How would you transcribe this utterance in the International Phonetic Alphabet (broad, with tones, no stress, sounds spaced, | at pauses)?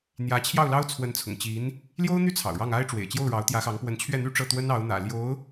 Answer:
n̪ j ä˧˥ t͡ɕʰ j ɑ˥˩ ʊ̯ l ɑ˥ ʊ̯ t͡sʰ w ə˧˥ n t͡sʰ ʊ̰˨˩ ŋ t͡ɕ i˧˥ n | l j o˥ ʊ̯ n̪ y˥ t͡sʰ ɑ̰˨˩ ʊ̯ ɻ ɑ˥˩ ŋ a˥ ɪ̯ ʈ͡ʂ w ḛ˨˩ ɪ̯ t͡ɕ j o˥˩ ʊ̯ ɻ ɑ˧˥ ʊ̯ t̪ j ä˧˥ x ɑ˧˥ ŋ p w ə˧˥ n t͡ɕʰ ɥ ɛ˥˩ n̪ y˥ ʈ͡ʂ ɤ˥˩ t̪ w ə˥ n ɑ˧˥ ʊ̯ n̪ ä̰˨˩ l j o˧˥ ʊ̯